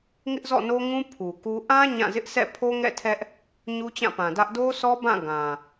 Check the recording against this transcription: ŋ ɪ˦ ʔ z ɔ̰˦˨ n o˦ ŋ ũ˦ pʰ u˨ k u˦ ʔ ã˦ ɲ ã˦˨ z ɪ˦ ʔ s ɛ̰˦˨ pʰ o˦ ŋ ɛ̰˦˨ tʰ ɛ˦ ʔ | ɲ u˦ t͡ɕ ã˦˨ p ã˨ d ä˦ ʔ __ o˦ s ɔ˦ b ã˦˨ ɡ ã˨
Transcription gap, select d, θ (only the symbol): d